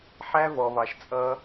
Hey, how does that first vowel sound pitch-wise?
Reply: high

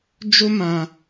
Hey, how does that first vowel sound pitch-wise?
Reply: high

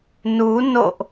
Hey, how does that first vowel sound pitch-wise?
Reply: rising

